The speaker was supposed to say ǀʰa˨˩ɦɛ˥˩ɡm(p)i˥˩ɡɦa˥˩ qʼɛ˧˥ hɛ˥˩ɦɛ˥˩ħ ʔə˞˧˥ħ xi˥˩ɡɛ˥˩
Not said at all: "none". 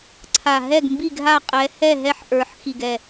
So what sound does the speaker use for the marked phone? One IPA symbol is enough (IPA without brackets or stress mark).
b